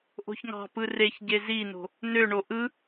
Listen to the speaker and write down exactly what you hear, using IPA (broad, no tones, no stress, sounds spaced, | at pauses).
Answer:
ʔ o̤ ç ŋ ɑ̤ p ɯ r e ç ɟ e z i n o̤ | n ø ɳ o ʔ ɯ